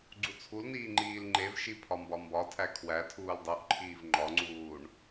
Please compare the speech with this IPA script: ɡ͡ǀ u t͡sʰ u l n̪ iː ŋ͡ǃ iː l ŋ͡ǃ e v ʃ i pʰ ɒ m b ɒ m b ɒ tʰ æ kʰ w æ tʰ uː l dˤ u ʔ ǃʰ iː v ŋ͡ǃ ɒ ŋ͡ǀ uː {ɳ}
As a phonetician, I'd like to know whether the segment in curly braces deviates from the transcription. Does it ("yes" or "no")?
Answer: no